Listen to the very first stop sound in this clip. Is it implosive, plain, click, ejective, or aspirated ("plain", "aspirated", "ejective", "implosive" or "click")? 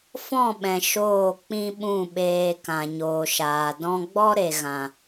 implosive